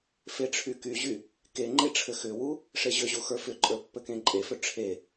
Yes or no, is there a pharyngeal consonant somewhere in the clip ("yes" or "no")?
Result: no